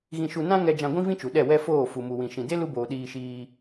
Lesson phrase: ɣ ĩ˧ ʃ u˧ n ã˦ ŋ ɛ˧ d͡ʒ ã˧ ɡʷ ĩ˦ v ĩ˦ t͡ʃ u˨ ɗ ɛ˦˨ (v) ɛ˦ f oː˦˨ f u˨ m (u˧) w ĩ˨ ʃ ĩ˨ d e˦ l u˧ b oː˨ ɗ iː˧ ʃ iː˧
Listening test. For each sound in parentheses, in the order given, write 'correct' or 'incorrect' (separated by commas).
incorrect, incorrect